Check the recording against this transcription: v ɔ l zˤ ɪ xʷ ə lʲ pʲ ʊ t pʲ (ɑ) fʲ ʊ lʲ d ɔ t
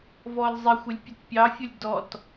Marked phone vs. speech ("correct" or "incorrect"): correct